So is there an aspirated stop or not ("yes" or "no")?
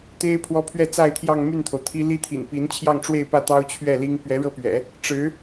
yes